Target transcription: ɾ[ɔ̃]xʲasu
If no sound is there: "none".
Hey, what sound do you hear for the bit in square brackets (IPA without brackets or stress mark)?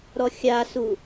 ɔ